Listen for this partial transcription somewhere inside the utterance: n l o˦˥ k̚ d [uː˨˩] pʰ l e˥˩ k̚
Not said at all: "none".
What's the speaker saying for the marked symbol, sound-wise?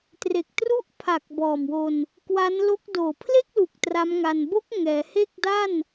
oː˨˩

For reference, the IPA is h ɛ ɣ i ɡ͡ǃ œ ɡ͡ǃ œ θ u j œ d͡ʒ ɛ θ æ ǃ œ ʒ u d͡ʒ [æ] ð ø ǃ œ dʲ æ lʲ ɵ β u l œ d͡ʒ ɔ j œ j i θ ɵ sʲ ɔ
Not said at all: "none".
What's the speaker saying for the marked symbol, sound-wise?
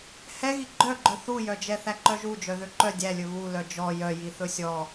œ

